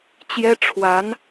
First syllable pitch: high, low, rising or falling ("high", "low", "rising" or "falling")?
high